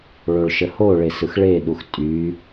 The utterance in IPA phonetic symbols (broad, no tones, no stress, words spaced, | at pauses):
ɭoɭʃəho ɭesɯxɭe ɗuxtʼy